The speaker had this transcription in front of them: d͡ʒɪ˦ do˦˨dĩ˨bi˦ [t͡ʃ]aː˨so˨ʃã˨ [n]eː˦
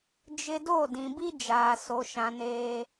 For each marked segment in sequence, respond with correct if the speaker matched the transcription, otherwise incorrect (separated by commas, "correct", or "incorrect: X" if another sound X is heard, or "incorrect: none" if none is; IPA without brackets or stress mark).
incorrect: d͡ʒ, correct